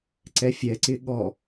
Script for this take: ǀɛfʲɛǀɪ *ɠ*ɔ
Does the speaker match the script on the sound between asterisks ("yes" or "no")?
yes